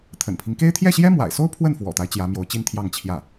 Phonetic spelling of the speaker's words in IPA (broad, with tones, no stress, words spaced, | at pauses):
t̪ʰə̰˨˩npʰi˦ŋke˥ɪ̯ t̪ʰjɛ˥˩ɕjɛ˥mwa̰˨˩ɪ̯so˥ʊ̯ pʰwə˥˩nfwɔ̰˨˩t̪a˦ɪ̯ t͡ɕjä˧˥mjo˧˥ʊ̯t͡ɕi˥nt̪ʰjɑ˥˧ŋ t͡ɕʰjä˥˩